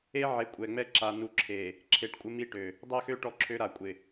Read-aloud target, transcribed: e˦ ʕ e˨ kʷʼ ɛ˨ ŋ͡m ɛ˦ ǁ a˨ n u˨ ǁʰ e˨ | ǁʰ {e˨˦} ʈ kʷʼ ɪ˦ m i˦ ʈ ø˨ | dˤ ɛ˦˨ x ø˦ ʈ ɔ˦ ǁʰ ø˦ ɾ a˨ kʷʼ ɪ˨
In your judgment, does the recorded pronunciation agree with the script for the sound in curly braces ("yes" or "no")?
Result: yes